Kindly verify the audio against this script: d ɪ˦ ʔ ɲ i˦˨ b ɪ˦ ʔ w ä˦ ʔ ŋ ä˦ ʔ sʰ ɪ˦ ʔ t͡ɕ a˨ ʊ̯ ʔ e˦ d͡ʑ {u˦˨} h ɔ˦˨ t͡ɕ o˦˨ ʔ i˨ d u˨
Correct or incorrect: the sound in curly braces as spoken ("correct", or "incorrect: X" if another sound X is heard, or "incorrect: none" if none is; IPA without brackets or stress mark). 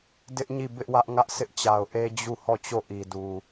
correct